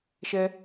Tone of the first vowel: high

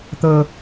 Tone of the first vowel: high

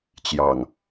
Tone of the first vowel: low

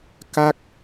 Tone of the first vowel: falling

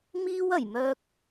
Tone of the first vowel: high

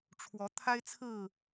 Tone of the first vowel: rising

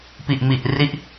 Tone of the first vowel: low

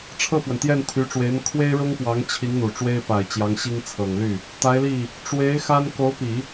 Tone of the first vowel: falling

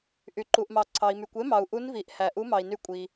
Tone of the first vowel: low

